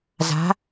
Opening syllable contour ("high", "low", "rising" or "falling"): rising